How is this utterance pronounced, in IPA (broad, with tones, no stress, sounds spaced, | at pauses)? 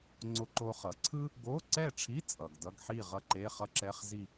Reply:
ŋ͡ǀ o˧ ǃ o˧ χ ʌ˩˧ ǀʰ ɯ˥ | ɡ o˧˥˧ ǀ ɛ˥˨ ʈ͡ʂʰ i˧˥˧ t͡sʼ ʌ˩ ɡ d ʌ˧˥˧ ɡ ħ i˥˨ ʁ ʌ˥˨ ǃ e˧˥˧ χ ʌ˥ ǁ ɛ˧˥˧ χ z i˥˨